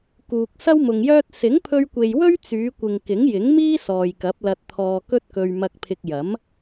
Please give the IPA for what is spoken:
k uː˨ k̚ s ɐ˥ w m ʊ˨ ŋ j œː˥ t̚ s ɪ˨˥ ŋ pʰ ɵ˧ ɥ kʷ e˨ j w ɵ˥ ɥ t͡s yː˨˧ kʷ ɪ˨ ŋ k ɪ˨˥ ŋ j ɪ˨˥ ŋ m iː˥ s ɔː˨ j k ɐ˨˥ p̚ l ɐ˧ t̚ t̪ʰ ɔː˧ k ɵ˥ t̚ k ɵ˧ ɥ m ɐ˧ k̚ pʰ ɪ˧ k̚ j ɐ˨˥ m

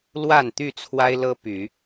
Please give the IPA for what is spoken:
l w a˥˨ n t̪ y˥˨ t͡sʰ w a˦ ɪ̯ l ɤ˦ p y˨˦

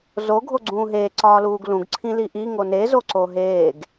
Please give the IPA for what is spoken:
z o ɡʱ o ɡ͡ǀ ũː ɦ eː ǀ ɒː l uː ɡ l ũ ɡ ǀʰ ĩ l i ʔ i ŋ o n e z o ǀ o ɦ eː ɡ

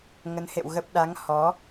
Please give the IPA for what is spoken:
ŋ ə˨˦ n h ḛ˧˨ w ɣ ə˦˥ p̚ ɗ a˨˦ ŋ h ɔ˨˦

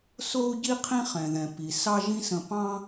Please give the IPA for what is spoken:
s o˥ u̯ ɟ i˥ qʰ ĩ˥ χ ɛ̃˩ ð ɛ̃˩ p i˩ s ɑ˥ ʒ ĩ˥ s ə̃˧ p ɑ̃˥

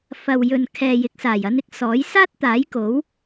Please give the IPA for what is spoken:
f ɐ˨ w j ɵ˨ n kʰ ɛː˨ j ɪ˨˥ k̚ s aː˨˩ j ɐ˧ n ɪ˥ k̚ s ɔː˨˥ j s aː˥ t̚ t̪ aː˨˥ j k o˨˥ w

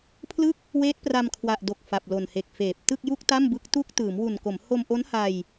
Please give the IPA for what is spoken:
pʰ l ɯ˥˩ k̚ | w eː˦˥ t̚ p r a˧ m kʰ w a˨˩ ʔ d o˨˩ k̚ f a˨˩ p̚ l o˨˩ n h e˨˩ k̚ f eː˨˩ p̚ t ɯ˥˩ k̚ j u˥˩ k̚ t a˥˩ m b ɯ˦˥ k̚ t u˦˥ k̚ t ɯː˩˦ m w u˨˩ n k o˩˦ m h o˧ m ʔ o˦˥ n h a˧ j

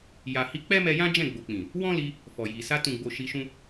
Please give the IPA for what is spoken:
j a˨ h i˧ k͡p ɛ˦ m ɛ˧ j ã˦ d͡ʒ ɛ̃˦˨ ɡ͡b o˨ k͡p ĩ˨ | w ɔ̃˦ l i˧ | f ɔ˨ j i˨ s a˧ t ũ˨ ɡ͡b o˨ ʃ i˧ ʃ ũ˦

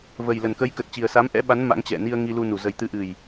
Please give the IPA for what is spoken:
v ə˨˩ j l ə˨˩ n k ə˨˦ j k ə˨˩ t̚ t͡ɕ i˨˩ ə̯ s a˨˦ m ʔ ɛ̰˧˥ ɓ a˨˦ n m a̰˧˥ ŋ t͡ɕ ɛ̰˧˨ n i˧ ə̯ ŋ i˧ l u˧ n u˨˩ z ə˨˩ j t̪ ɨ˨˦ ʔ ɨ˨˩ j

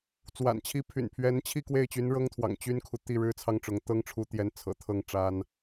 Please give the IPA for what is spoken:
t͡s w a̰˨˩ n t͡ɕʰ i˧˥ pʰ y̰˨˩ n pʰ ɥ ɛ˧˥ n t͡ɕʰ i˥˧ k w e˥˩ ɪ̯ t͡ɕ y˧˥ n ɻ ɤ˥ ŋ t̪ʰ w ɑ̰˨˩ ŋ t͡ɕ y˥ n kʰ u˨ t̪ i˥˩ ɻ ɻ̩˥ t͡sʰ ɑ˥ ŋ ʈ͡ʂ ʊ˧˥ ŋ t̪ ɤ˥ ŋ ʈ͡ʂʰ u˧˥ t̪ j ɛ˧˥ n t͡sʰ ɤ̰˨˩ t̪ʰ ɤ˥˩ ŋ ʈ͡ʂ a˥ n

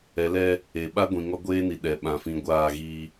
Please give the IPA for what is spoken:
ɛ˨˦ l ɛ˦ | e˨ ɓ a˦ ɡʷ ĩ˨ ŋ ɔ˦ ɡʷ eː˦ n i˨ ɗ ɛ˨ ɓ ã˨ f ĩ˨ ɡʷ aː˦˨ ɣ iː˦

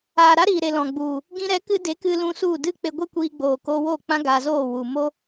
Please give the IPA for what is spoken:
aː˨ ɾ a˦ ɾ iː˨ ɾ e˨ l ɔ̃˨ ɡ͡b u˨ | ɡ ĩ˧ ɾ ɛ˨˦ k ɨ˧ d e˨˦ k ɨ˧ l ũ˧ s u˦˨ d ɨ˦ k͡p e˧ ɡʷ e˦ kʷ iː˧ ɡ͡b oː˨ k o˧ w o˦˨ k͡p ã˦ ɡ a˧ z oː˦˨ w u˨ m o˦

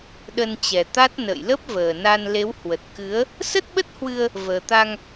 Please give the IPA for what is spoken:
ɗ ə˧ n t͡ɕ ɛ˨˩ t̪ a˦˥ t̚ n ə̰ː˧˨ j l ə˦˥ p̚ v əː˨˩ n a˧ n l e˨˦ w h w ə˨˩ t̚ k ɨ˨˦ ə̯ | s ə˦˥ t̚ ɓ ə˦˥ t̚ h w ɨ˧ ə̯ | v əː˨˩ t̪ a˧ ŋ

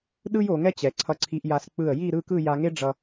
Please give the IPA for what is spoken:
ɗ ɯ˥ j o˩˧ ŋ ɛ˥ t͡ɕ ɛ˩˧ ǀʰ ʌ˧ ǀʰ i˧ ʔ j a˧ s k͡p ɯ˧˩ ə̯ j i˥˧ ɾ ɯ˥˧ k ɯ˥˧ j a˧ ŋ e˥ ɖ͡ʐ ʌ˧

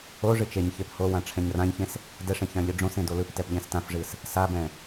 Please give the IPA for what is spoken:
o ʐ ɨ t͡ʃ e ɲ ç e p h o w ã ʈ͡ʂʰ ɛ̃ ɲ r ã ɲ ç ẽ s | d ɛ ʂ ẽ ç ã ʎ ɨ ɖ͡ʐ õ s ẽ d o l ɯ p t ɛ p ʎ ɛ̃ s t ã f ʐ ɨ s | s a b ɛ̃

